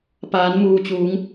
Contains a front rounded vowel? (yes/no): no